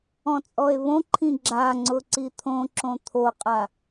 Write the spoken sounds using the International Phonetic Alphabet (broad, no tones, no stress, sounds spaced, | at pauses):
ɔ̃ t͡sʼ ɔ e̯ β õ ǃʰ ĩ ɡ͡ǁ a ŋ͡ǀ ʊ ǀ i t̪ʰ õ ǁ õ t̪ʰ o qʼ a